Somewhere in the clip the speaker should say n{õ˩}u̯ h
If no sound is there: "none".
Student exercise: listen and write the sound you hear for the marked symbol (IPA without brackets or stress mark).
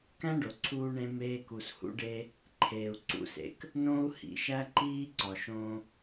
õ˥